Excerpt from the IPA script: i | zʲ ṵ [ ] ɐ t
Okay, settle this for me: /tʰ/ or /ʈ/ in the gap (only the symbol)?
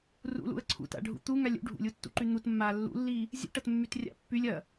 ʈ